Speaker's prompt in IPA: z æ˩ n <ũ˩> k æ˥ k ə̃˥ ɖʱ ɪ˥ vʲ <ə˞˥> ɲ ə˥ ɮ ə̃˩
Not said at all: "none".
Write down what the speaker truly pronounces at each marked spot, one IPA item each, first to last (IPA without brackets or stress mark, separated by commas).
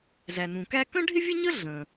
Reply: ũ˩, ə˥